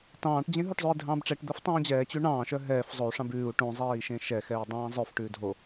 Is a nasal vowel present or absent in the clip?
present